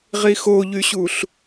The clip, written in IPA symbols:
ʁ i x o ʎ y ɕ u ɬ

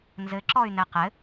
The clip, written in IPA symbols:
n z ɘ ǁ ɔ y̯ n ɘ q ɘ

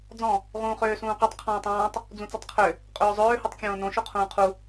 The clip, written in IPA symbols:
d͡z ɔ̃ | ʁ ũː χ øː s ũː q o tˤ qʰ ɔ̃ː tˤ ɔ̃ː tˤ | d͡z ũ t͡s ɔ tˤ qʰ ø | qʼ øː zˤ øː h u tˤ kʲ õː n õ ʃ u qʰ ũː qʰ u

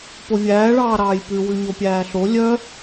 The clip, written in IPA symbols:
p o vʲ æː ɭ ɑː ɾ ɑː j p ʉ w ʉ ɲ o pʲ æː ɬ o lʲ œ

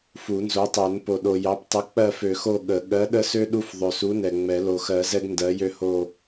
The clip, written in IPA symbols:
f u˨˩˦ n z o˨˥ tˤ ø˨˩˦ n p o˨ ɗ o˨ j ɑ˨˥ p tˤ ɨ˨˥ k͡p ɜ˦˨ f ø˨˩˦ x o˦˨ ɠ ə˨˩˦ ɠ ɜ˨˥ ɗ ə˦˨ s ø˦ ɗ u˦ f ðˤ ø˨ s u˨˥ n ɛ˨ ŋ͡m ɛ˨˩˦ l o˨ x ɜ˨˩˦ z ɛ˦ ɡ n d ɜ˨˥ j ø˦ h o˦˨

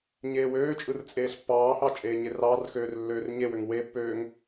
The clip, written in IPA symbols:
ɲ eː w øː t͡ʃʼ ɯ r t͡sʼ eː ɬ pː ɑː h ɑ t͡ʃʼ eː ɲ e r ɑː r x øː r lː øː r ɲ e w ø ŋ w e pː øː ŋ

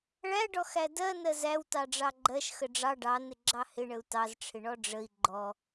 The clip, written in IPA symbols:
ɭ æ ɖ ɔ x æ d ɜ n ɜ z æ w t ɑ ɖ͡ʐ ɑ ɡ͡ǃ ɜ ʃ x ə ɖ͡ʐ ɑ ɖ ɑ n ɪ ɡ͡ǁ ɑ h ɪ ɳ ə u̯ t ɑ z ʈ͡ʂʰ ɪ ɳ ɔ ɖ͡ʐ ə i̯ ɡ͡ǃ ɔ

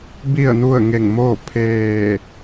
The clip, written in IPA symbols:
b i˥˨ ə̯ n u˥˨ ə̯ ŋ e˧˩ ŋ m oː˥˨ pʰ eː˧˩

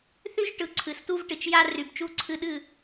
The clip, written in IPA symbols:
θ y˦ ʒ ʈ ɯ˨ ǀʰ ɨ˨ s t u˧ v ʈ ɨ˨ t͡ʃ j a˧ r y˨ b t͡ʃ u˧ ǀʰ ɨ˧ ɗ ɨ˦˨

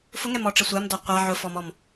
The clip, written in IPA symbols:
f ʊ ŋ ɛ m ɔ ʈ͡ʂ ə sʷ a m d ɔ qʷ a ʕ ʊ f ɔ m ɔ m

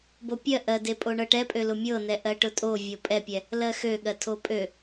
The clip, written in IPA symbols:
b o pʲ ɜ ʔ ɜ d e pʼ o ɳ ɤ ʈ ɛ pʼ ø l ʊ mʲ ɤ n ɛ ʔ ɜ ʈ ʊ tʼ o vʲ o pʼ ɛ pʲ ɛ | l ɜ x ø ɠ ɜ tʰ o pʼ ø

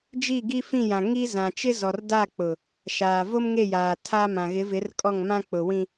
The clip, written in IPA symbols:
d͡ʒ i˦˨ ɡ i˦ f ĩ˦˨ j ã˨ ŋ i˦ z ã˨ t͡ʃ ɪ˦ z ɔ˨ r d a˦˨ k͡p ʊ˨ | ʃ aː˨ v o˦ m ŋ e˦˨ j aː˨ tʰ a˦ m ã˨ ɣ ɪ˨˦ v ɪ˨˦ r kʼ ɔ˦˨ ŋ m ã˦ k͡p ʊ˨ w ĩ˨

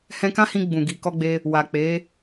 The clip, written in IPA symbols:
h ɛ̃˧ k ã˦ h ĩ˧ ɡ͡b ũ˨ ɡ i˨ k ɔ˧ ɡ͡b e˧ | w a˨ k͡p e˨˦

